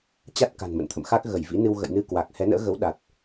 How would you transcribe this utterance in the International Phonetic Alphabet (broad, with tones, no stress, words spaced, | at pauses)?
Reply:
t͡ɕa˦˥t̚ ka̤˨˩nmə̰˧˨nt̪ʰə̰˧˨mxa˦˥k̚ ɣə˧˩jvḭ˧˥nɨ˧w ɣə̰˧˨jnɨ˧kwa˨˩k̚ hɛ˨˦nə̰ː˧˥ɣə˨˦w ɗa˨˩t̚